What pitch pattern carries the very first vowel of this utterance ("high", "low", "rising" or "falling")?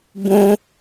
high